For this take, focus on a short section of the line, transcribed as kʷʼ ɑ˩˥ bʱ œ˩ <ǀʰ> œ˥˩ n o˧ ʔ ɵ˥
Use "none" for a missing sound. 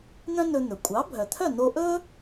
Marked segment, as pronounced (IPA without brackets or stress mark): t̪ʰ